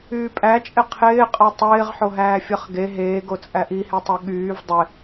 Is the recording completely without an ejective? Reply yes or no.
no